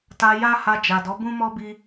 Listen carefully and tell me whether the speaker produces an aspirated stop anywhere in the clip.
no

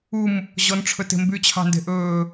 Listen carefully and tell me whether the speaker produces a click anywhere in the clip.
no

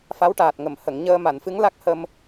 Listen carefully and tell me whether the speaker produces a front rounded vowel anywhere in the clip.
no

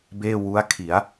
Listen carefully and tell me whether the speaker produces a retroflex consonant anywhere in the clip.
no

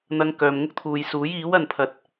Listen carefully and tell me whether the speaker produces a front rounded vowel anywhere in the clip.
yes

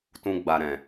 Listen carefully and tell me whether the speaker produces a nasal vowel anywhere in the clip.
yes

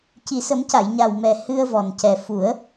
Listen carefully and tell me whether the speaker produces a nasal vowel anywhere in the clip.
no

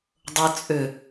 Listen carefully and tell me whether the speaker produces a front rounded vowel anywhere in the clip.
yes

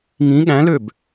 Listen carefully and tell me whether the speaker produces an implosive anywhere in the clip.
yes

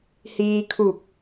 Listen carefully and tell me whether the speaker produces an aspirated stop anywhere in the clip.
yes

